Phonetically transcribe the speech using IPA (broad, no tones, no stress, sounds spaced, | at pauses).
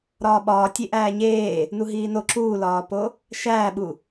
ɾ ɒː ɓ ɒː tʲ e ʔ æː ɲ eː | n u ɦ iː n o ǁ uː l ɒː p o | ʃ æː ɓ u